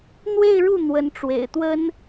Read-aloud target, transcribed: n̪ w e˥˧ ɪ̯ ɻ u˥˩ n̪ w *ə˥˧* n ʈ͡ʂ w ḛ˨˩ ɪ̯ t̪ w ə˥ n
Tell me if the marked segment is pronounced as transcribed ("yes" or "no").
no